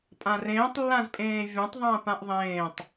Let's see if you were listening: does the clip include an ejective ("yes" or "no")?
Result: yes